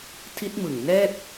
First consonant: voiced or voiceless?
voiceless